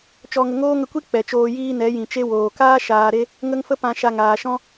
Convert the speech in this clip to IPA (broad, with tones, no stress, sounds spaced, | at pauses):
t͡ʃ ɔ˧ ŋ ə˧ ŋ oː˦ ŋ ə˧ kʷ i˦ k͡p ɛ˨ t͡ʃ oː˧ j iː˦ n ɛ˨˦ j ĩ˨ t͡ʃ e˦ w oː˨ k aː˦ ʃ aː˨ ɾ e˧ | ŋ ə˦ ŋ f ə˦ p ã˧ ʃ a˧ ŋ aː˨ ʃ ɔ̃˦